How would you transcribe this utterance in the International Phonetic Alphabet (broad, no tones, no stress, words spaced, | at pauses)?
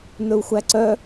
n̪ɵu̯xʷæǀœ